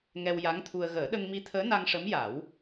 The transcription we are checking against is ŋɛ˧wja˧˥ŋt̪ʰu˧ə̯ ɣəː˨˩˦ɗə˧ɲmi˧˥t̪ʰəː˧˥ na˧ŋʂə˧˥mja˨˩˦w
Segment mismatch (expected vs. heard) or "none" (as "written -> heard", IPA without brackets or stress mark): ɲ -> ŋ